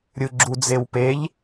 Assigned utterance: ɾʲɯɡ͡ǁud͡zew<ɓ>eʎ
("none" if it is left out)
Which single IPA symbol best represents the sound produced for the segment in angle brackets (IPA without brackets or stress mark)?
p